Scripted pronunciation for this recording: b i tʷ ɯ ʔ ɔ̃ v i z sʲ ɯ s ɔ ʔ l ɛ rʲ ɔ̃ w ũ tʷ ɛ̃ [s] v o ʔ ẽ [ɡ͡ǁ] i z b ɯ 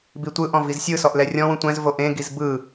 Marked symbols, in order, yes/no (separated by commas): no, no